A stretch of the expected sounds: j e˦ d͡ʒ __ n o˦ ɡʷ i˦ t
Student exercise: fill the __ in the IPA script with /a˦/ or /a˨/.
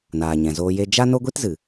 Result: a˦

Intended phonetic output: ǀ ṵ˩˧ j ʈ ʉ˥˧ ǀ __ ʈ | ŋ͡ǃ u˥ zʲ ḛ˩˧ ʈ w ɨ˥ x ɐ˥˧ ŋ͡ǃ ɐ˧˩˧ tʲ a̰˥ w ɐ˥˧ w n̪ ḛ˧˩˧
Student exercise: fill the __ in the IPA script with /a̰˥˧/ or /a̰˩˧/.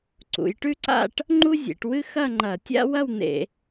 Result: a̰˥˧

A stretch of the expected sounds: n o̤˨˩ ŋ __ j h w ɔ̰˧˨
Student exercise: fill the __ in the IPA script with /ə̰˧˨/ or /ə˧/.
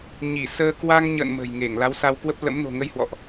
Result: ə˧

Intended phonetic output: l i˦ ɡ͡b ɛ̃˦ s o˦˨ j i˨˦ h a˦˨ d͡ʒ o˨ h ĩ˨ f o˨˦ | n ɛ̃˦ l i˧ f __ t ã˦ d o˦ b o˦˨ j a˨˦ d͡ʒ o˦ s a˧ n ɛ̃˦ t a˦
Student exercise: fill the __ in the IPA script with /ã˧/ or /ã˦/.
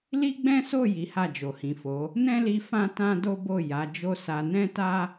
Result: ã˦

